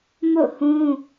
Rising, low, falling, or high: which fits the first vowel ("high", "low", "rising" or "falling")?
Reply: falling